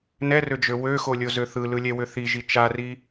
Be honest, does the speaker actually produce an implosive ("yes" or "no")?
no